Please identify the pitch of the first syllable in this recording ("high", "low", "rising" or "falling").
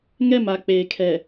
falling